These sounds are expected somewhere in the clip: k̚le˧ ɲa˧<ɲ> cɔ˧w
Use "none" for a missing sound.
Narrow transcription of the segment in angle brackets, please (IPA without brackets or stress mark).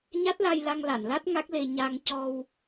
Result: ŋ